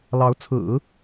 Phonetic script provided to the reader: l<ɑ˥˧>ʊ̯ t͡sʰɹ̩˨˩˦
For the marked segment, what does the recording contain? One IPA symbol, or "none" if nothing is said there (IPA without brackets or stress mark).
ɑ˧˥